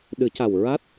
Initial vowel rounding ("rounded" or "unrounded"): unrounded